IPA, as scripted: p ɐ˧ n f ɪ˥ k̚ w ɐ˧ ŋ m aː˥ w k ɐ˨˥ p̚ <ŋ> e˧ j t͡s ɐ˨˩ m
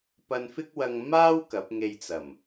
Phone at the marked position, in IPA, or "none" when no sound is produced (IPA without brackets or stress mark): ŋ